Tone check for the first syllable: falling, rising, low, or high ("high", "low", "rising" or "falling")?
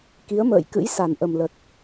rising